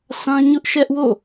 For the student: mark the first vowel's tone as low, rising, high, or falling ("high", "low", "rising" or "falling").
high